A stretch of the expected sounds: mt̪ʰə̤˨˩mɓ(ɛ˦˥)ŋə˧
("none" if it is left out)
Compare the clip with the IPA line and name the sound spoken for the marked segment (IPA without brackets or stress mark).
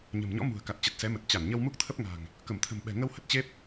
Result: ɛ̤˨˩